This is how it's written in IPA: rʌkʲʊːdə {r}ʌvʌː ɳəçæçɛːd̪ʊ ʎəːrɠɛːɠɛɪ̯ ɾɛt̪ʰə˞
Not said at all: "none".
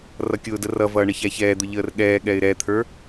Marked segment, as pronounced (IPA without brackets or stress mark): r